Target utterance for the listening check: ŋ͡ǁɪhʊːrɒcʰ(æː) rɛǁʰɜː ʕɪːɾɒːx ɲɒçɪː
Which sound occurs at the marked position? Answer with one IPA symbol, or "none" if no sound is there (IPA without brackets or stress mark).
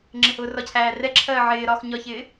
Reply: æː